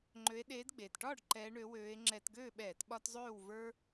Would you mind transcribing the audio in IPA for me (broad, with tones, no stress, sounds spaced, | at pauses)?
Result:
ŋ͡ǃ ø˨˦ e̯ ɗ eː˨˦ d ɡ͡b eː˩ t ʈ ɒː˥˨ ɖ ǃ ɛː˨˦ ɳ ø˨˦ w øː˨˦ e̯ ŋ͡ǁ ɛ˧˩˧ t ɡ øː˥˨ ɓ ɛː˧˩˧ t ɓ ɒ˦ t zˤ øː˥˨ w v ə˞˦